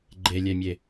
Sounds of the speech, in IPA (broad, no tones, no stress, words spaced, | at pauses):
ɡ͡ǃelʲɛmʲe